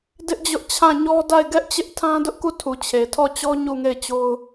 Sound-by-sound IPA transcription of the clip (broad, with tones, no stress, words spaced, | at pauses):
dɪ˦ʔd͡ʑʊ˦ʔ t͡ɕʰã˦˨ɲɔ˦ da˦˨ɪ̯ɡɛ˦ʔt͡ɕɪ˦ʔ tʰã˦dʊ˦ʔku˦˨tʰu˨ t͡ɕʰe˨tʰɔ˦˨t͡ɕɔ˦ ɲu˦˨ŋe˦˨ɪ̯t͡ɕo˦ʊ̯